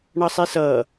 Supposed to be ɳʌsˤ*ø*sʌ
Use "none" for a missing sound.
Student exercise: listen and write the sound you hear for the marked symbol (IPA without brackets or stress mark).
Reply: e